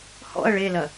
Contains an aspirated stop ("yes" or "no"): no